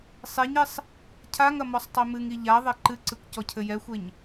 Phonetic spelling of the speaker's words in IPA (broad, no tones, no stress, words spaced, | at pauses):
sˤeɲesˤ | cʰaŋɐ mɔsˤtˤemɨŋi ʎa ðˤeǃɨǀɨkʷ cɔcʰɘjɛxʷeɲ